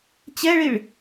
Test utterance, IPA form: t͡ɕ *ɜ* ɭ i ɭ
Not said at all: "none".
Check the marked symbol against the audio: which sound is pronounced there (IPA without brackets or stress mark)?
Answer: ɛ